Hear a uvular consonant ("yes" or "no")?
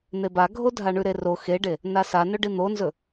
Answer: no